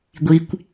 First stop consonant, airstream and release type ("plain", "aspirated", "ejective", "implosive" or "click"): plain